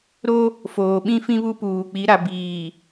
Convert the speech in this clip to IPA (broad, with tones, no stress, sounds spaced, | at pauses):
ɾ o˦ | f oː˨ ɓ ĩ˦ f ĩ˦ β u˦ p uː˨ k͡p i˨˦ ɾ a˨ b iː˨